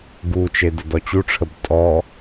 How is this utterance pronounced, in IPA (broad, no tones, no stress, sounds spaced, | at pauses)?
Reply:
ɡ u t͡ʃ e d ə d ɔ t͡ɕ u ʈ͡ʂʰ ə b tʼ ɔ